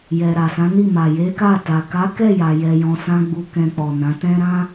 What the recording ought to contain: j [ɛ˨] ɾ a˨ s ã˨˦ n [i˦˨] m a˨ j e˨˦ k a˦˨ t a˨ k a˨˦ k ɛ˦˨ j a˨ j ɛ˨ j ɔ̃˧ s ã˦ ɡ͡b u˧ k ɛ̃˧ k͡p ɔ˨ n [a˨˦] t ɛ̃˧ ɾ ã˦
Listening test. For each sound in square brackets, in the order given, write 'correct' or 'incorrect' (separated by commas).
correct, correct, incorrect